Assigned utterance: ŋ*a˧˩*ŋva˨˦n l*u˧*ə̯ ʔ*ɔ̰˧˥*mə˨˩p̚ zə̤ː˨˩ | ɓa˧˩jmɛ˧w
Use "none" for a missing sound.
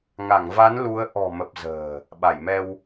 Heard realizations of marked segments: a˧˩, u˨˦, ɔ̤˨˩

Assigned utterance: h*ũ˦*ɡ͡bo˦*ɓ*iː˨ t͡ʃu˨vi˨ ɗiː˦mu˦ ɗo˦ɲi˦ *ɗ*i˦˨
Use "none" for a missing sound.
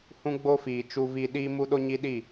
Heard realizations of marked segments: ũ˦, f, ɗ

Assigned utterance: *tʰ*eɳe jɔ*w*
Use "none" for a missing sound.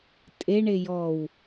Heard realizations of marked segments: tʼ, w

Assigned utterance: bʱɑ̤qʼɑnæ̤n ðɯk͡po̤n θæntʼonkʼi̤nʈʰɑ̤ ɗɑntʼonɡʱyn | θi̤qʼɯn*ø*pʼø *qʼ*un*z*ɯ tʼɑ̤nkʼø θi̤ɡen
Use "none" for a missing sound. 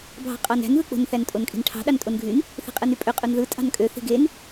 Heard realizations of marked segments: y, qʼ, ð

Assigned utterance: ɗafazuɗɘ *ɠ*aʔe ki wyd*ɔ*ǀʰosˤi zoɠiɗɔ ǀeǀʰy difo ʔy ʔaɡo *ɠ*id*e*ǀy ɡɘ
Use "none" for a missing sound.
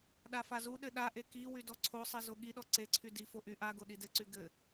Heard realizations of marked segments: ɗ, ɔ, ɗ, ɘ

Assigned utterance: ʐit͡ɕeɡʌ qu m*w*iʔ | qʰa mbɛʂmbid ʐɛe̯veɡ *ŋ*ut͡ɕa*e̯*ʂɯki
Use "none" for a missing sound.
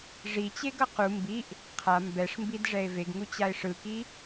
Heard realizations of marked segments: b, ŋ, e̯

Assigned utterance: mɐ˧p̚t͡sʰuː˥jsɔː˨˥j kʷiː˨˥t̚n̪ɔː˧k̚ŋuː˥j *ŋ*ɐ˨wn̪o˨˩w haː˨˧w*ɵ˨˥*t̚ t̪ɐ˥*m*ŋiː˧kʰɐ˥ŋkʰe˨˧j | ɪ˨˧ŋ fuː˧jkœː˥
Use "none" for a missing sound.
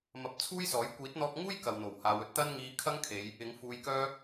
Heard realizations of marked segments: k, ɵ˧, n

